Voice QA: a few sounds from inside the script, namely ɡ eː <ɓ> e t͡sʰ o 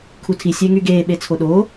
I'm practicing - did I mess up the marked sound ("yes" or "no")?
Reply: no